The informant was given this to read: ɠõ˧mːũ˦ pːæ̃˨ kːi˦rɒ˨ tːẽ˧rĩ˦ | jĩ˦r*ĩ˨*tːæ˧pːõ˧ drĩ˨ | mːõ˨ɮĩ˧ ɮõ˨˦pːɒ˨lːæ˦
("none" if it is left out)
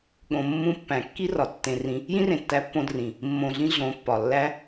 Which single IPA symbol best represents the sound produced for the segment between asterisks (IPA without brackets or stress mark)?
ẽ˨